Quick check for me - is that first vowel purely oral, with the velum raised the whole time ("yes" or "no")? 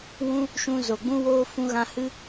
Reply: no